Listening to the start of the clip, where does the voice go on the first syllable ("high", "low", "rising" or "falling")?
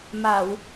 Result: low